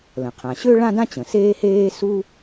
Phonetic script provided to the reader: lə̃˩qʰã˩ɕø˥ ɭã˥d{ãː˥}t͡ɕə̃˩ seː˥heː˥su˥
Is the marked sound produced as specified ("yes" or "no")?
no